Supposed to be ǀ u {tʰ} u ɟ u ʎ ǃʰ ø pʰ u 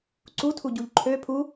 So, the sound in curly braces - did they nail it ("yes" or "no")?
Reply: yes